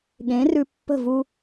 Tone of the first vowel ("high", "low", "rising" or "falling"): rising